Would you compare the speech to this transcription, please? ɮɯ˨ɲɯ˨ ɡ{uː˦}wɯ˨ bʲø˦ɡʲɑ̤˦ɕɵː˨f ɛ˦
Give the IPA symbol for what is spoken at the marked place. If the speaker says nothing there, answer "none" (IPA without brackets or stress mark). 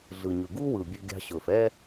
u˦